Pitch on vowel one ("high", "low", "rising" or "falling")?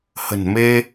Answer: low